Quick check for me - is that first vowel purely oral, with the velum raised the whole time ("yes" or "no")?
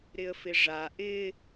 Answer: yes